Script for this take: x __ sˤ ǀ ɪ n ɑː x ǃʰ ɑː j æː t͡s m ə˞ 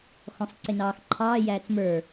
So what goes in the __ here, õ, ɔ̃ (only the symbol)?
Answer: ɔ̃